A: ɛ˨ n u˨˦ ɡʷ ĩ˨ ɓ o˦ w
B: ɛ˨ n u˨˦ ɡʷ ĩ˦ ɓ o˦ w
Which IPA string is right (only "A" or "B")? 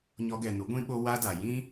B